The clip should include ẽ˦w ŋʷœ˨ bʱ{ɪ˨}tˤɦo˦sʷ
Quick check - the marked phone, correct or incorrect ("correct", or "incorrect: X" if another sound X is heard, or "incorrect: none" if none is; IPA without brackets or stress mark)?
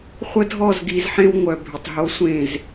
correct